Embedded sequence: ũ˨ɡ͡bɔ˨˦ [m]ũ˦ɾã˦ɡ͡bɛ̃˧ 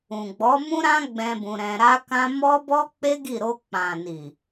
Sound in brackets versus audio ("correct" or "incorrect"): correct